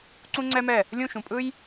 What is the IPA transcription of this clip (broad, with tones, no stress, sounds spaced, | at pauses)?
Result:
ǀ ũ˦ ŋ͡ǀ ɛ˦ m ɛ˦˨ | lʲ ũ˦˨ ʃ ũ˨ pʼ ɯ˦ j